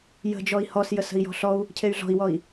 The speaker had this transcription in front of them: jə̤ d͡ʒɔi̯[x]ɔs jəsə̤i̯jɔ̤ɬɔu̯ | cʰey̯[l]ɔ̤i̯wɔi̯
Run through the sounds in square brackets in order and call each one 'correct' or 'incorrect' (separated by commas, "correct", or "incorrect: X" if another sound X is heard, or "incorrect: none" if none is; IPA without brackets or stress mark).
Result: incorrect: h, incorrect: ɮ